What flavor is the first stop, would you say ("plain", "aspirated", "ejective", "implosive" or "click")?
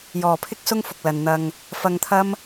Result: aspirated